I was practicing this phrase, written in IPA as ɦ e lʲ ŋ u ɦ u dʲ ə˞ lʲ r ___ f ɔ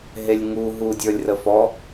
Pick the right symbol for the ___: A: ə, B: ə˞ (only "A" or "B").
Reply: A